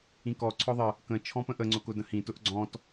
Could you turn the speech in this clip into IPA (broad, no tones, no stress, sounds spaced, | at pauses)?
ĩ k ɔ ǀʰ ɔ ðˤ ə | k ə̃ t͡ʃʰ ɔ̃ p ə̃ ʔ ə ŋ͡ǀ ʊ k ʊ d ə̃ h ĩ t ʊ ʔ ɡ͡ǀ ɔ̃ t